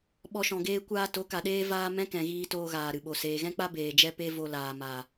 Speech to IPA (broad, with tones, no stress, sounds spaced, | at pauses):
ɓ ɔ˧ ʃ ɔ̃˨ ɡ eː˦ kʷ aː˧ t o˨˦ k a˨ ɗ eː˦ v aː˦ m ɛ̃˦ k ɛ̃˨ ɣ iː˧ t oː˧ ɣ aː˨ ɾ ɨ˨ ɓ o˨ s eː˨ ɣ ɛ̃˦ k͡p a˦ b eː˨ d͡ʒ ɛ˦ p e˦ v o˧ l aː˨ m a˨